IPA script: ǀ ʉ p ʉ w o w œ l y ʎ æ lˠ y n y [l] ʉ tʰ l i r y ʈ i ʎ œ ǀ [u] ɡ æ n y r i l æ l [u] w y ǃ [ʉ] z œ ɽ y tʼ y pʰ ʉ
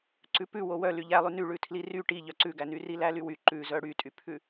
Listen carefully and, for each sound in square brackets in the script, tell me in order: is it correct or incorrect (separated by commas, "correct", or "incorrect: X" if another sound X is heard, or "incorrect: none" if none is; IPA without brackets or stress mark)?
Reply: incorrect: ɭ, incorrect: ʉ, incorrect: y, correct